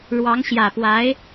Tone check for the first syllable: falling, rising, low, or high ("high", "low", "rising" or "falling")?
rising